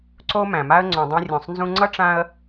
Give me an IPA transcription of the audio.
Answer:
ǀ o˦ m æ̃˩ m a˦ ə̯ ŋ͡ǀ õ˨ dˤ ẽ˦ rʲ ũ˨ sˤ n z ũ˥ ŋ͡ǀ ʌ˥ ʈ͡ʂ ã˦ ə̯

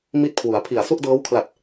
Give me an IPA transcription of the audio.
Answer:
m i˥˩ t̚ kʰ w u˩˦ a̯ pʰ i˨˩ a̯ s u˥˩ ʔ d ɤː˦˥ w kʰ l a˨˩ t̚

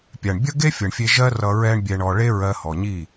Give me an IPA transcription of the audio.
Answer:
pʲ a˨ ɳ bʲ ʌ˦ ɡ e˦ fʲ ʌ˨ ɳ fʲ e˧ ʒ ɜ˦ r ʌ˧ ɹ ɛ˦ ɳ bʲ ɛ˧ ɳ ɔ˧ ɭ e˦ ɹ ɜ˧ h ɔ˨ ɲ i˦˨

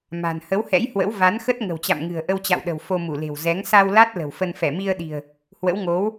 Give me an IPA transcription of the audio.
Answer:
m a̤˨˩ n h ə˨˦ w h ɛ̰˧˥ j h w ə̰˧˥ w v a˨˦ n x ə˦˥ t̚ ŋ ə̤˨˩ w t͡ɕ a̰˧˨ m ŋ ɨ̤˨˩ ə̯ ʔ ə˧ w t͡ɕ a̰˧˨ w ɗ ə̤˨˩ w f o˧ m u˧˩ l e̤˨˩ w z ɛ˨˦ ŋ s a˧ w l a˦˥ t̚ l ə̤˨˩ w f ə˧ n f ɛ˧˩ m i˧ ə̯ ɗ i̤˨˩ ə̯ | h w ə̰˧˥ w ŋ o˨˦ w

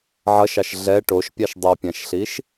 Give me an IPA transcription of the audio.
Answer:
ʕ ʌ ʃ ɑ ʃ ɮ ɛ ʈ o ʃ pʲ ɑ ʃ dˤ o pʲ ã ʃ ɬ i ʃ

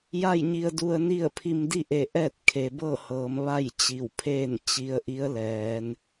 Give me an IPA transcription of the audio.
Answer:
j a˥˨ j ɲ i˧ ə̯ d u˧ ə̯ n i˥˨ ə̯ pʰ i˧ m d i˥˨ ʔ e˧˩ ʔ ɛː˥˨ t̚ kʰ e˩ b ɤː˥˨ h ɤː˩˧ m ʋ a˥˨ j t͡ɕ i˧˩ w pʰ eː˥˨ n t͡ɕ i˧˥ ə̯ ʔ i˧˥ ə̯ l ɛː˩˧ n

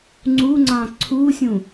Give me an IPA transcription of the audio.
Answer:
ŋ͡ǀ u ŋ͡ǀ ɑ̃ ǀʰ u sʲ ũ

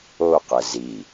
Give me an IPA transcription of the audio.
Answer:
o q ɘ z i

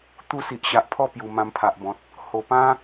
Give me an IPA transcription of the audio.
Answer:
t̪ u˥˧ s i˨ ʔ ɕ a˨ ʔ pʰ ɔ˥˧ p j u˨˩ m ã˧ m pʰ a˨ ʔ b ɔ̃˨ t̚ | h o˨˩ p ã˦

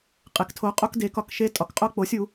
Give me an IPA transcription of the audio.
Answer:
qʼ e˩˥ k tʰ o˩˥ qʼ o˧ k d e˩˥ k ɒ˧ k ʃ e˧ tʼ ɒ˩˥ k qʼ o˧ k͡p o˩˥ sʲ u˩˥

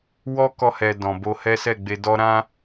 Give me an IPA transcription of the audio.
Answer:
w ɔ˦ k ɔ˧ h ɛ˨ d ɔ̃˨ b o˧ h ɛ˦ s ɛ˦˨ ɡ͡b e˧ d ɔ˦ ɾ ã˦

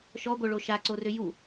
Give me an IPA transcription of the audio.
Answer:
ʃ ɔ ɡʷ œ ɭ o ʃ a ǀ o r ʏ j u

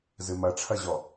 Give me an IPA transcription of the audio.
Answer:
z ɨ m ɐ ʈ͡ʂʰ ɐ ʑ ɔ

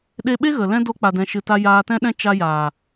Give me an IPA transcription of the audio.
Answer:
ɗ e˧ ɓ e˦ ɣ ə˨ l ɛ̃˦ d o˧ k͡p a˨ d ɛ̃˨ ʃ ɨ˨ t a˧ j aː˧ t ɛ̃˦ ɗ ɛ̃˦ t͡ʃ a˧ j aː˨

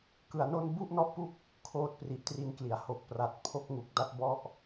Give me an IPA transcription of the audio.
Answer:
k ɯ˧ a̯ n o˥˩ n b u˥˩ ʔ n ɔ˦˥ ʔ p u˦˥ k̚ | kʰ oː˦˥ t̚ p r i˨˩ ʔ t r i˧ n k l i˩˦ a̯ h o˨˩ k̚ p r a˨˩ t̚ pʰ o˦˥ k̚ ŋ u˨˩ k̚ d a˦˥ t̚ b ɔ˦˥ ʔ

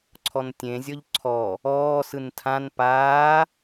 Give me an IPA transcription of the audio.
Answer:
ǀʰ ɔ n tʲ ẽ zʲ ɔ ʎ ǀʰ ɔ | ɔː s ɯ n tʰ ã n p aː

